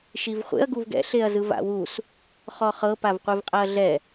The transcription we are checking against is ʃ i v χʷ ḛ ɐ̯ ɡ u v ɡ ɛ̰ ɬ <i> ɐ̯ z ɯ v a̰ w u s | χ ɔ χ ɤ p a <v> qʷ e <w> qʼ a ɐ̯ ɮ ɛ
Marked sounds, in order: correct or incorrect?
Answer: incorrect, correct, incorrect

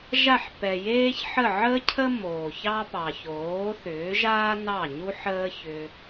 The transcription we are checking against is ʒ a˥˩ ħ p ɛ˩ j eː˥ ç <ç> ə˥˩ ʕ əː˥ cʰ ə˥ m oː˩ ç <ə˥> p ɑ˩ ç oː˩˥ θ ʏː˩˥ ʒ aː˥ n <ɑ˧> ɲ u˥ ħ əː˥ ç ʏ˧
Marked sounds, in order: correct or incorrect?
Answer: incorrect, incorrect, incorrect

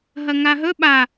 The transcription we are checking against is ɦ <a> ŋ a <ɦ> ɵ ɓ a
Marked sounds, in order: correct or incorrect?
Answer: incorrect, correct

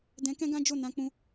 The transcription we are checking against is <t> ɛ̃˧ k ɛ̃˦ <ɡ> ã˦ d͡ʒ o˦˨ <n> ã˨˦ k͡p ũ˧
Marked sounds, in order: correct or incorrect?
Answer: incorrect, correct, correct

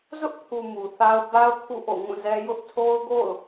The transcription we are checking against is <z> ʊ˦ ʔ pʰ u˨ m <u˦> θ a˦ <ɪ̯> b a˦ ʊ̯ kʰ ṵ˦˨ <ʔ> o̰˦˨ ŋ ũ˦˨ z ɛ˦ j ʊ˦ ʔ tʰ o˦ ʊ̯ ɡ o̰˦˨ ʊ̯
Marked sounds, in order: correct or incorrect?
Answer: correct, incorrect, incorrect, correct

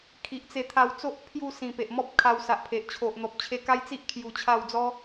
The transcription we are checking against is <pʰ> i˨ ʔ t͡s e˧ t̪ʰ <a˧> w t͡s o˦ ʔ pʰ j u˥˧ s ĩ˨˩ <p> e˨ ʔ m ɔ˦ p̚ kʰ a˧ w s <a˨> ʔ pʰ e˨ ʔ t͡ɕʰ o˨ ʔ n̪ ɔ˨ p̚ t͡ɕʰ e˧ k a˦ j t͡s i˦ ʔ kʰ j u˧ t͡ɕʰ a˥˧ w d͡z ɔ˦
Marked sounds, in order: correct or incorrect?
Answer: incorrect, correct, correct, correct

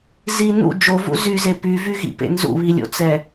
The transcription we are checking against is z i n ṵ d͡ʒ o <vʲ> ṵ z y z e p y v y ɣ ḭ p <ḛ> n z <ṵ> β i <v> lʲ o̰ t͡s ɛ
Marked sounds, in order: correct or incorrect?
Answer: incorrect, correct, correct, incorrect

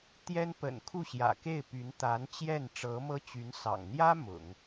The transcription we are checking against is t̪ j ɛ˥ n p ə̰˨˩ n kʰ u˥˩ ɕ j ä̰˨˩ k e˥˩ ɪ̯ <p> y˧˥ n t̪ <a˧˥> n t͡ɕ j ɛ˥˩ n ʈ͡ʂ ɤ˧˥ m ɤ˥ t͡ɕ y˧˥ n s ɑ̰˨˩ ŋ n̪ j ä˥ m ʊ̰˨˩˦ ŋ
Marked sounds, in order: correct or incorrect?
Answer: correct, correct

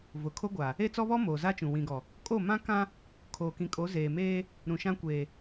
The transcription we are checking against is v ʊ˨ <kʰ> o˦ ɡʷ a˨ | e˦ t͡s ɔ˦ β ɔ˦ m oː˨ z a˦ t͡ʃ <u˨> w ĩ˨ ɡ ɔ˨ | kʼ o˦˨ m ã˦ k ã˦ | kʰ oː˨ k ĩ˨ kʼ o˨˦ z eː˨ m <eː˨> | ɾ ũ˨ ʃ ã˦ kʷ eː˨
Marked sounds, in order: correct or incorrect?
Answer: correct, incorrect, incorrect

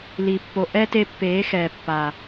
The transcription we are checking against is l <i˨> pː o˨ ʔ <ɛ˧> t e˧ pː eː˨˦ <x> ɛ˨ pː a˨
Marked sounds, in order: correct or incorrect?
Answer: correct, incorrect, correct

